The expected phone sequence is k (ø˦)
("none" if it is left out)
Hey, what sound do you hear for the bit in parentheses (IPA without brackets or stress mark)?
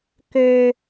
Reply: ø˦